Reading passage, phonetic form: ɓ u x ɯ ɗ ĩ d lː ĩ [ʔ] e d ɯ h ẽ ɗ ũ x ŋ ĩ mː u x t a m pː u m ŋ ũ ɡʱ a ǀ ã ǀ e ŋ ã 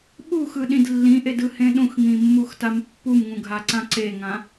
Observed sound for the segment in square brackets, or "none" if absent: ʔ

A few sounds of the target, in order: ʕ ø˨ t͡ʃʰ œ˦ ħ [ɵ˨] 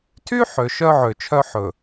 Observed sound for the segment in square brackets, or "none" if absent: ɵ˨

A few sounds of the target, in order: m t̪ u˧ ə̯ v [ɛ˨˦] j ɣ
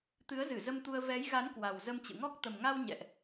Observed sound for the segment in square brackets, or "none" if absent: ɛ˨˦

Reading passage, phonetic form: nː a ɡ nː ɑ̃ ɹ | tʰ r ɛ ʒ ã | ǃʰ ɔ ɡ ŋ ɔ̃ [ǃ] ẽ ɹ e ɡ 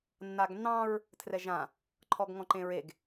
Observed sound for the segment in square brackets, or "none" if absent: ǃ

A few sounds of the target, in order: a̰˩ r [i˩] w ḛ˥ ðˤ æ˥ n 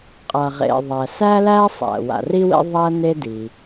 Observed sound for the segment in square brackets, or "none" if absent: i˥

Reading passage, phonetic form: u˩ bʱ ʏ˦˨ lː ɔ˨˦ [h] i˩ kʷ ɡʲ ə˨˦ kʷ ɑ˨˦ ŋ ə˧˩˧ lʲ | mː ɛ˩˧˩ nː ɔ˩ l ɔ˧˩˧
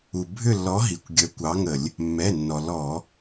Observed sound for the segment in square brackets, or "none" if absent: ɦ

